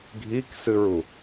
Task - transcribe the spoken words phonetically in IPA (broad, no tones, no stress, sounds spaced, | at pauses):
ɡʱ i k s ɨ ɹ u